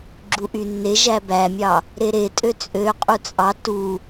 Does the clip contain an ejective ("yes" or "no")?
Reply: yes